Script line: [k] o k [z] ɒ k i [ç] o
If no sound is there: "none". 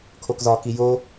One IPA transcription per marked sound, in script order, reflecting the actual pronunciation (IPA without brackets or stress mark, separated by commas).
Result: kʰ, z, j